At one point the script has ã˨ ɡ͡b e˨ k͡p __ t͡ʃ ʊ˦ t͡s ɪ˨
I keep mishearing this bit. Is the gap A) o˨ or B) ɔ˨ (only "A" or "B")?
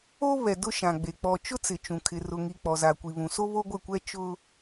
B